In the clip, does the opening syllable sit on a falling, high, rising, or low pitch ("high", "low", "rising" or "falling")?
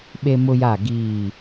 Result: high